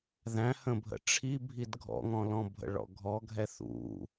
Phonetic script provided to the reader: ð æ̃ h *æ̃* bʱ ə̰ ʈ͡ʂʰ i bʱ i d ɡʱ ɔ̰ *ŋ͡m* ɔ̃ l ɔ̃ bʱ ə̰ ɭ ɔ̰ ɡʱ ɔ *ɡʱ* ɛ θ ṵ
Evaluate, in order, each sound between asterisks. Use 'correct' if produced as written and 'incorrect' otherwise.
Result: incorrect: ə̃, incorrect: ŋ, correct

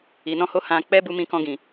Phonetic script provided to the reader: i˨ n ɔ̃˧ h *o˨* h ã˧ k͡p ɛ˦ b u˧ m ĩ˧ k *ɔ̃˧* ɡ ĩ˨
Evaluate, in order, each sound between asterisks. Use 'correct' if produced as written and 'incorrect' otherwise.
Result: incorrect: o˧, correct

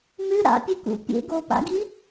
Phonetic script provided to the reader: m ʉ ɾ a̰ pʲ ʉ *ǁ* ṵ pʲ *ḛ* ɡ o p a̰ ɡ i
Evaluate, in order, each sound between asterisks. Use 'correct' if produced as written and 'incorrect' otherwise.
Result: incorrect: k, correct

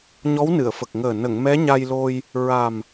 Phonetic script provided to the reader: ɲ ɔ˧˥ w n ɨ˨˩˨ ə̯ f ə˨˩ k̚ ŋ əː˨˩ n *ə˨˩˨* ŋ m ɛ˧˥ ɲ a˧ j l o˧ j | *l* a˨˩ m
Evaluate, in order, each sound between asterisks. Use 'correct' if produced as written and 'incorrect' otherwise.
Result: correct, incorrect: ɹ

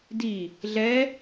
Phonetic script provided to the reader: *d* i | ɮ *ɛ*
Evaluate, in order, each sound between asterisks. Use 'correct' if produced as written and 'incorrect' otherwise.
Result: correct, correct

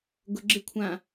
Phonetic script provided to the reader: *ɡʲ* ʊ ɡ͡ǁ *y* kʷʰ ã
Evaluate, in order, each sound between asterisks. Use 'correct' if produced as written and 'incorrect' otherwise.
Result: incorrect: ɡ, incorrect: ɪ

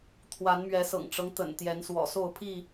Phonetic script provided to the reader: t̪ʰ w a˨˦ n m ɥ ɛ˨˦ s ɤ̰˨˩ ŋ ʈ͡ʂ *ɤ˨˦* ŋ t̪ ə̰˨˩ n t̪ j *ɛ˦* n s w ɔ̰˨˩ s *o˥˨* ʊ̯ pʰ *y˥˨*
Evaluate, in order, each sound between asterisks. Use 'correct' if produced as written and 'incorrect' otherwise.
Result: incorrect: ɤ˦, incorrect: ɛ˨˦, correct, incorrect: i˥˨

